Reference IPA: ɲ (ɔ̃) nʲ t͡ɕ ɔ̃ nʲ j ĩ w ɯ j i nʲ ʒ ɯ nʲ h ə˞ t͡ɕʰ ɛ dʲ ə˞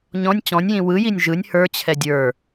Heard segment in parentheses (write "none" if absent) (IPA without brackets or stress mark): ɔ̃